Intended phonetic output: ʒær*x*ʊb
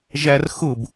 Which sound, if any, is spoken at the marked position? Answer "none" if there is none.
x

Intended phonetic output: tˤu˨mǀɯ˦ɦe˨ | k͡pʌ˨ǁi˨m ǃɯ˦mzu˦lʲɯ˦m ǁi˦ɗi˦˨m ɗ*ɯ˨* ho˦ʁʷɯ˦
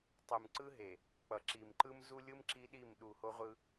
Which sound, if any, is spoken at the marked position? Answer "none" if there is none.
u˨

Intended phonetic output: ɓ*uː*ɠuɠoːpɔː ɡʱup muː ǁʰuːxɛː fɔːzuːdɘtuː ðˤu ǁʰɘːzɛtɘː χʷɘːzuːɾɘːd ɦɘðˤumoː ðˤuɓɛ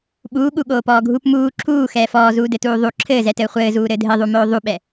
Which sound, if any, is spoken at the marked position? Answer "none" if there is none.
uː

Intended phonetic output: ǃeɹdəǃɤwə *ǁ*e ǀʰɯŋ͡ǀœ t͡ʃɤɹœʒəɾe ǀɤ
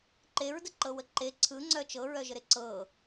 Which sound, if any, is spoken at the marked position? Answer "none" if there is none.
ǃ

